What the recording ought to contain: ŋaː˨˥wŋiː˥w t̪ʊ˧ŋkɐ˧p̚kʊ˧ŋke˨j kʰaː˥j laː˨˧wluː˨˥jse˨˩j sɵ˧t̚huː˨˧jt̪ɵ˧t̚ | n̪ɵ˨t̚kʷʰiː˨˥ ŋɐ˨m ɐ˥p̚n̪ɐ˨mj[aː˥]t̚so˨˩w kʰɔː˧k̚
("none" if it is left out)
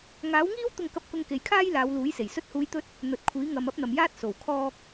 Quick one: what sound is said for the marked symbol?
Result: aː˥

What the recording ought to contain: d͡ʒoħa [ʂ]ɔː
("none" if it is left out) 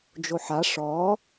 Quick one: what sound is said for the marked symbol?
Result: ʂ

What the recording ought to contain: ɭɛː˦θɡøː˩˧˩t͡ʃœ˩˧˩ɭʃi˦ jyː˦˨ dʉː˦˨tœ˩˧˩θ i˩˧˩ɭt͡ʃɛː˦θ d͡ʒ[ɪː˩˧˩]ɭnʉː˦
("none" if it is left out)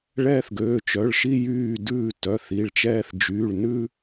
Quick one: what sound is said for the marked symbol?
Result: yː˩˧˩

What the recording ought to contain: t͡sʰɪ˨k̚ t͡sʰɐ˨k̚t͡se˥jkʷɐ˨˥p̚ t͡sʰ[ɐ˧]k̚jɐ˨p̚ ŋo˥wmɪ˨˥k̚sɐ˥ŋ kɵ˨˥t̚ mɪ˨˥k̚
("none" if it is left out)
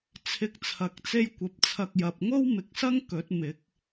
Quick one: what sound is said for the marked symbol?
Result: ɐ˧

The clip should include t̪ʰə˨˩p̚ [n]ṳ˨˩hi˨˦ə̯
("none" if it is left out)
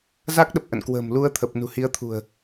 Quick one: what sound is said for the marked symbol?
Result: n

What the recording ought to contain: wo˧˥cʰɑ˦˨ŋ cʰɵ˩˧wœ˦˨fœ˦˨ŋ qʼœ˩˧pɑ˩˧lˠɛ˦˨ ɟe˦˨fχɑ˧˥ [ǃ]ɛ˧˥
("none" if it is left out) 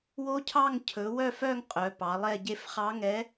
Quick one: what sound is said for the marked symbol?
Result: ŋ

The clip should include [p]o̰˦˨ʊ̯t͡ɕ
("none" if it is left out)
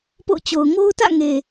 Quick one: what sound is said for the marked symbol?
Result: p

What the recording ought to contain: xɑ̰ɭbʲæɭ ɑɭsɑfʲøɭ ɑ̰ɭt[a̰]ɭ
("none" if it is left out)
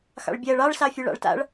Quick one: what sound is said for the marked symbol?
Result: a̰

